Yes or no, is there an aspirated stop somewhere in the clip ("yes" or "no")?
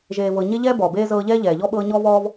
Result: no